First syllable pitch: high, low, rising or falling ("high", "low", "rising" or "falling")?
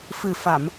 low